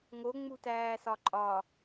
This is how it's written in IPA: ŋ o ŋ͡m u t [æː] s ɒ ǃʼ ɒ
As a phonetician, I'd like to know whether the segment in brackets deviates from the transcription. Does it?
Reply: no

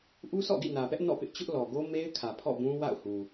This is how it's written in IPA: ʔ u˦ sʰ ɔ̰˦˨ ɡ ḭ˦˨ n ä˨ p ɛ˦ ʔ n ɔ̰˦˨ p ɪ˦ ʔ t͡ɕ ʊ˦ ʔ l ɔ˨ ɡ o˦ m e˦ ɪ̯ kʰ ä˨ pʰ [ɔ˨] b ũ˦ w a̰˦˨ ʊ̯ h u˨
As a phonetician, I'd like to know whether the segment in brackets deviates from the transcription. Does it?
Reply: yes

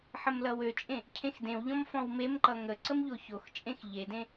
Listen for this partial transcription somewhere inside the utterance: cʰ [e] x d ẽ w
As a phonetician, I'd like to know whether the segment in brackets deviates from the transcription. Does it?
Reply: yes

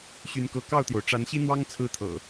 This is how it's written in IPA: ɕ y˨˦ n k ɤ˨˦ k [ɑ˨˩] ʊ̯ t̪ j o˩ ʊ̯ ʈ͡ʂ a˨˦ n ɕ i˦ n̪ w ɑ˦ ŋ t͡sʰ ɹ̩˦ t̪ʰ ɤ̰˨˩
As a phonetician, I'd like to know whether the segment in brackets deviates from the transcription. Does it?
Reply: yes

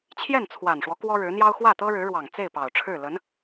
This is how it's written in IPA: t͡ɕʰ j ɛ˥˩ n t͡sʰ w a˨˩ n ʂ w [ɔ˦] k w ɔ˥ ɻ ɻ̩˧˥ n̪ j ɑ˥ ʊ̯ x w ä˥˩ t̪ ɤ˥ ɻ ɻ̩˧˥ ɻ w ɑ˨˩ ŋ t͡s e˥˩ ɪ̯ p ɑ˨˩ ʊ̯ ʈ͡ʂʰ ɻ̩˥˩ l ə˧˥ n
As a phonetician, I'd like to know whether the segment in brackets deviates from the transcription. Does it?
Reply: no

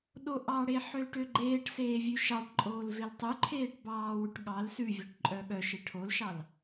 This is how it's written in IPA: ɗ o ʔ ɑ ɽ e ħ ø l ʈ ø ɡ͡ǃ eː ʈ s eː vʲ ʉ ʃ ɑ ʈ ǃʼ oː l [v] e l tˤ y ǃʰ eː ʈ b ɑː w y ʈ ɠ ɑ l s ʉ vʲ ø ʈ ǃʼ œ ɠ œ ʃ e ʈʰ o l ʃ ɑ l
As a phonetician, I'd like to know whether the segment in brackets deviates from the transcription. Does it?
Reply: no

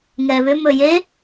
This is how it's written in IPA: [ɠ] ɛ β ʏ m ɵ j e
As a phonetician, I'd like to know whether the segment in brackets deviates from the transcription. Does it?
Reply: yes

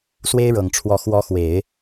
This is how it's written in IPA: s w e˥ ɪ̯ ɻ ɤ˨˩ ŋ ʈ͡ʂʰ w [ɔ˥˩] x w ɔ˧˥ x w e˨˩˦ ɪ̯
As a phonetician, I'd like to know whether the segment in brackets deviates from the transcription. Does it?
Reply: yes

